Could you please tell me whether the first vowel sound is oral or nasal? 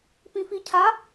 nasal